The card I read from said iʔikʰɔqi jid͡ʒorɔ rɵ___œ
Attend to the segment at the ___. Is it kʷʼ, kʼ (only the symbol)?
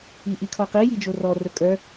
kʼ